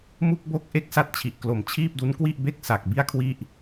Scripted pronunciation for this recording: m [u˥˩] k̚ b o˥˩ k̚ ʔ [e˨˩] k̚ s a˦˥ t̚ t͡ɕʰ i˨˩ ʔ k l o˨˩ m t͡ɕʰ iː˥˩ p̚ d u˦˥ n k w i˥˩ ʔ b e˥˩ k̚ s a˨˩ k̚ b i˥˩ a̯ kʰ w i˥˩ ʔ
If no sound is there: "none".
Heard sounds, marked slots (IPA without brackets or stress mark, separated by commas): u˥˩, e˥˩